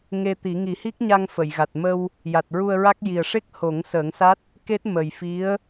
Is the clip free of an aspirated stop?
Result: yes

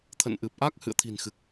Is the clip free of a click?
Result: yes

